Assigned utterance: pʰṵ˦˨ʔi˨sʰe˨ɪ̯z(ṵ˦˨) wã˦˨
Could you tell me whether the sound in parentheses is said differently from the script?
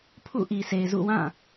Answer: no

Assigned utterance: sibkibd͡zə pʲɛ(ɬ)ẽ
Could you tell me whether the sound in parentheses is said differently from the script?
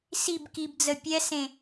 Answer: yes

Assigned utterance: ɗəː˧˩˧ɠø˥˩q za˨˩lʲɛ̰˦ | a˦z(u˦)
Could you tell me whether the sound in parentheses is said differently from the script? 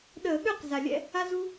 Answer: no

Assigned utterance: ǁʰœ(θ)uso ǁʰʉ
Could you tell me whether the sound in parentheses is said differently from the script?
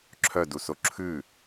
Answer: yes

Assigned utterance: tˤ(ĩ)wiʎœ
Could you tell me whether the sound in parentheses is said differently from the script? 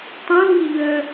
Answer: yes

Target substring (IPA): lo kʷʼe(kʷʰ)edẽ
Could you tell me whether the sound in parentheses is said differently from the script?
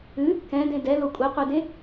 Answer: yes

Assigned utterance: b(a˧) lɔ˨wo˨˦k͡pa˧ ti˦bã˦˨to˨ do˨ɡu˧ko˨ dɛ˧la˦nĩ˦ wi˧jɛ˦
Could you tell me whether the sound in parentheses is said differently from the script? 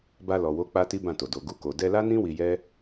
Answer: no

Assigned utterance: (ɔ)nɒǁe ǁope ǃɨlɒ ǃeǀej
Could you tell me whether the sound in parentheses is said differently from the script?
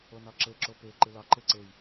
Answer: yes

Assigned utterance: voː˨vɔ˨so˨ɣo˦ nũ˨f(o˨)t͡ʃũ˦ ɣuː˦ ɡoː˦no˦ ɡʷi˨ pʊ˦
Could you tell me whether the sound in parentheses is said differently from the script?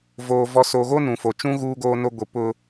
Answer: no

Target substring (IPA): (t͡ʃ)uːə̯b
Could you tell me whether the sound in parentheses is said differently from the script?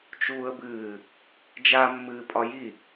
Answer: no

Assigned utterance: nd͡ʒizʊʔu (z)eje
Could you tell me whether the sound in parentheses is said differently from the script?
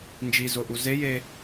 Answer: no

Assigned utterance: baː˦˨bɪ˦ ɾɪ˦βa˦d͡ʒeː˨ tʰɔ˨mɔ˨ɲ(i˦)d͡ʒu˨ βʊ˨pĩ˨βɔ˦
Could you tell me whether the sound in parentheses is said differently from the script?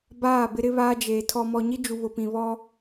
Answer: no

